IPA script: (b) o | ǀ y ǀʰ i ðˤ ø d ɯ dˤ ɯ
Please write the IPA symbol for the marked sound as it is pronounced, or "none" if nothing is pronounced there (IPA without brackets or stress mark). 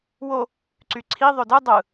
w